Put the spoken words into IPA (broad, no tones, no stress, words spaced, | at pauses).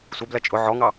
sʷɜblɜ t͡ʃʼʊ ʕɔŋɑ